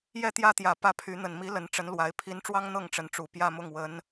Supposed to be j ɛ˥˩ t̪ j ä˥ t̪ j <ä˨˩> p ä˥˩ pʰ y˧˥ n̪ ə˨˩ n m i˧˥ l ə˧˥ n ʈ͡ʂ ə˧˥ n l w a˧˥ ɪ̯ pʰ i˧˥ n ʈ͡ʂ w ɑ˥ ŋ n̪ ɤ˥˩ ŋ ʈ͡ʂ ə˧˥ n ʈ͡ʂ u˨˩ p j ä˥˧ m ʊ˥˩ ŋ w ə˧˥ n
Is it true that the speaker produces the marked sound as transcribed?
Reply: yes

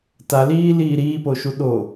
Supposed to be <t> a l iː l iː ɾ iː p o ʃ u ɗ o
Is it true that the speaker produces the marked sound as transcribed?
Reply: yes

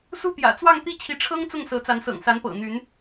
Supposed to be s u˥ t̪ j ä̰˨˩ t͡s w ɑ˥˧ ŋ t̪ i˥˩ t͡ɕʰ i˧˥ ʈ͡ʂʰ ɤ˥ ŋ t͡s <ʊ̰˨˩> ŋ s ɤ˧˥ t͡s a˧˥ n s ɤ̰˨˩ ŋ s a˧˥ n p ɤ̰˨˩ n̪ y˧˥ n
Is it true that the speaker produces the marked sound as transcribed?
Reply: no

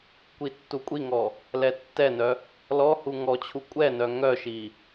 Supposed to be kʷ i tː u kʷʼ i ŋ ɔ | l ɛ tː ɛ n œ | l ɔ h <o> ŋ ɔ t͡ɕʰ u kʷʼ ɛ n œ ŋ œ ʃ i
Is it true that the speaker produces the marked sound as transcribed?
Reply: no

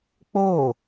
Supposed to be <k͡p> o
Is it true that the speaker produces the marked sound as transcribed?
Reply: yes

